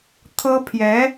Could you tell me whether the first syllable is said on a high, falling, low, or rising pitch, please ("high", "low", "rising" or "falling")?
high